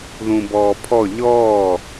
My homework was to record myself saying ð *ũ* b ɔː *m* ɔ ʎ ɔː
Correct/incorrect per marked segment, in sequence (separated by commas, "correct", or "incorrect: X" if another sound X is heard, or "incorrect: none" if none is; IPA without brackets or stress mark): correct, incorrect: pʰ